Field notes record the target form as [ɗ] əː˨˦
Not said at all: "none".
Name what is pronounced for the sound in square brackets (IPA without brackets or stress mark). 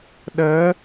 ɗ